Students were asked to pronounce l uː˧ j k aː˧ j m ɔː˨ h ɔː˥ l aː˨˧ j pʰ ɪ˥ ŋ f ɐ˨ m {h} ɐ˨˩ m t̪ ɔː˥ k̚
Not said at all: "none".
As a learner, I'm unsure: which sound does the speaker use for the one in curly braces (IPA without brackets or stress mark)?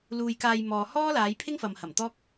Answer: h